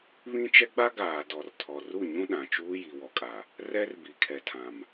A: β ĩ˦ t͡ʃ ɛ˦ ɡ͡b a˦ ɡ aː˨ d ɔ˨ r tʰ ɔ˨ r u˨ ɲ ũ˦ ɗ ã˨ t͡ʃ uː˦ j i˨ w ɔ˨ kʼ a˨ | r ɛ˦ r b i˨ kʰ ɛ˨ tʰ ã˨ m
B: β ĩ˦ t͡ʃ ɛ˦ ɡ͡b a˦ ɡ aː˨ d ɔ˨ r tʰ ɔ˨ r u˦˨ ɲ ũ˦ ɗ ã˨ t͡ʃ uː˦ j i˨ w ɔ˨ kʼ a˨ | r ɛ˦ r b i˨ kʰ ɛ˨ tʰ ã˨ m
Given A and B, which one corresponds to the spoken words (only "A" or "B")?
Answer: B